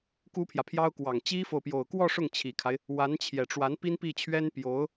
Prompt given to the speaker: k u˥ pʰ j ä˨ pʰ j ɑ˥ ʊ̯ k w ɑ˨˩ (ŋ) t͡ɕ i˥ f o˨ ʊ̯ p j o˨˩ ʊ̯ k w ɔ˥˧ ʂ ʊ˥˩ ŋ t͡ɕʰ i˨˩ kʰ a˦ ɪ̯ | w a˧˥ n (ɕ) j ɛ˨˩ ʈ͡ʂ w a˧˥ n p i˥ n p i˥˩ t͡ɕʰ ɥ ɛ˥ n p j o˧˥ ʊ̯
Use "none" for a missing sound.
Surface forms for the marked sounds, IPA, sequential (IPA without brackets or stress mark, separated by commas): ŋ, t͡ɕʰ